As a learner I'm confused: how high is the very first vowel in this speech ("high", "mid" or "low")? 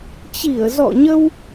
high